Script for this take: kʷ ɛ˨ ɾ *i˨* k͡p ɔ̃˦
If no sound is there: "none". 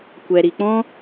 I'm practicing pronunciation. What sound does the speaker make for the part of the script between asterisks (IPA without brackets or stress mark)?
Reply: i˨